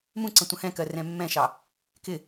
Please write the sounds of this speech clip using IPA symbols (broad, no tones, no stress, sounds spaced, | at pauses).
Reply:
m ũ ǀ ə̃ tʷ ə̃ h ɛ̃ k ɜ r ɛ̃ mː ɛ̃ ʃ ɑ | k ɪ